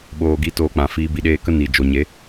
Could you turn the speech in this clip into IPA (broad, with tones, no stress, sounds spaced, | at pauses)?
ɓ oː˨ ɡ i˨˦ t oː˧ k͡p ã˨ f iː˧ b i˨ ɗ eː˧ k ə˦ n i˨ d͡ʒ o˨ ɲ e˨˦